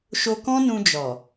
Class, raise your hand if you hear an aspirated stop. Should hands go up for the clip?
no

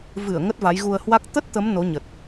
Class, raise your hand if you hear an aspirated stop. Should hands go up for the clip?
no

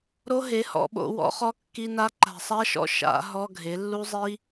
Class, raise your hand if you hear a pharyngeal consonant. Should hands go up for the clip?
no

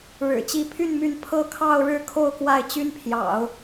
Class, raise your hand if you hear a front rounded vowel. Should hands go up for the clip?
yes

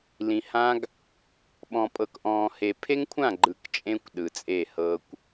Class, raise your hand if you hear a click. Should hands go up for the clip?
yes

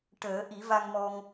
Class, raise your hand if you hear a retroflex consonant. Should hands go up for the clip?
yes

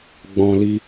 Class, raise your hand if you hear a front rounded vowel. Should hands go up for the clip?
no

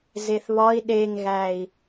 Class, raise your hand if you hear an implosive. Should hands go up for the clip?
yes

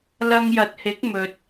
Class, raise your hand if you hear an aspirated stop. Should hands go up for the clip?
no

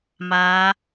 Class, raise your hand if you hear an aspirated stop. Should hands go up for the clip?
no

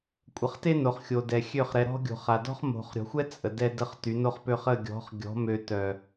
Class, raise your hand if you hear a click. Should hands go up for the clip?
no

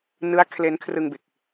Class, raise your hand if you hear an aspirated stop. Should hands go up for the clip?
yes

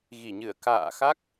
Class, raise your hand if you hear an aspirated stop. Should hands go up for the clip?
no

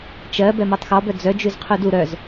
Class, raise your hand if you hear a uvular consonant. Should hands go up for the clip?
yes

